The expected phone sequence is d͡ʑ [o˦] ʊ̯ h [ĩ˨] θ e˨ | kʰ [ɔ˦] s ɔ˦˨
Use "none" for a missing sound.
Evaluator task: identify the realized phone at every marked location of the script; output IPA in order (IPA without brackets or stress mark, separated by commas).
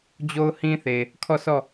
o˦, ĩ˦, ɔ˦˨